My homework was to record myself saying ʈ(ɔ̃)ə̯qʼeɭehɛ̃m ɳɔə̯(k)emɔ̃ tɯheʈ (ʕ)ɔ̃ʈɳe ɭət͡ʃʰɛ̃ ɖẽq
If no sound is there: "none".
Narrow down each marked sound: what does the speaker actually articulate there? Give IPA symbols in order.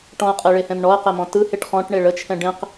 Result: ɔ̃, q, χ

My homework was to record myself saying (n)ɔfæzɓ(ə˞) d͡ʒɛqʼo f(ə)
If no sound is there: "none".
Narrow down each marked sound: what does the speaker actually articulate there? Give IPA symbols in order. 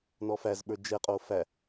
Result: n, ə˞, æ

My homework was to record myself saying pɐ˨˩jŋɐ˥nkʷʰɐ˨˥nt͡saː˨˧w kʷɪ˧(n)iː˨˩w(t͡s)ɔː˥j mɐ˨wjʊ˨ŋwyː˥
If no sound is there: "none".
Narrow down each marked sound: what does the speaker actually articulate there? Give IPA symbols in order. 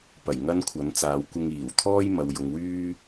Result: ŋ, t̪ʰ

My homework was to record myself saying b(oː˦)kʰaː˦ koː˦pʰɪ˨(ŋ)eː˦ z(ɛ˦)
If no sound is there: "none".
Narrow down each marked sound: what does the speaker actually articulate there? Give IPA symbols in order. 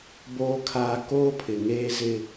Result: oː˦, ŋ, ɪ˦

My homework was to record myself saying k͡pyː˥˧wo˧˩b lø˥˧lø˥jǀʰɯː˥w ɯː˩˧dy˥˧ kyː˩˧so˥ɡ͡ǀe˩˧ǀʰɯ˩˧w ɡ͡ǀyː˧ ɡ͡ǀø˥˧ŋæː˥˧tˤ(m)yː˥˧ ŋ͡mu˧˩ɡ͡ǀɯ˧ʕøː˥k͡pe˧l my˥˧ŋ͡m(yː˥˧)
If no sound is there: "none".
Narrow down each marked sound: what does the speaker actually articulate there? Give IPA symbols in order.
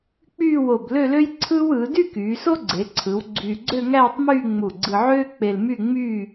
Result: m, yː˥˧

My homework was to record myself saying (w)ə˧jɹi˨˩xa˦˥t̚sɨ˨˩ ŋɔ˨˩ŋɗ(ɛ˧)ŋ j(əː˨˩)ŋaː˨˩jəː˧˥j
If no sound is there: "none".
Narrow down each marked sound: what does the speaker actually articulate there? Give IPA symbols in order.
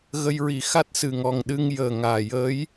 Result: ɣ, ɨ˧, əː˨˩

